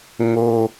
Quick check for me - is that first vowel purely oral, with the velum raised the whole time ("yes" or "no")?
yes